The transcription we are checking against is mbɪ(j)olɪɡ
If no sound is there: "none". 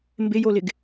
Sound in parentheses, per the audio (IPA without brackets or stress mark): j